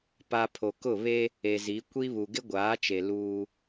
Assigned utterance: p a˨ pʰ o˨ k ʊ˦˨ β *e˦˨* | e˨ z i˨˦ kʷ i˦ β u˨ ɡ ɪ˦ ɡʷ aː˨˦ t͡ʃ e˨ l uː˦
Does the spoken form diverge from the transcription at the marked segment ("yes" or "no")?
yes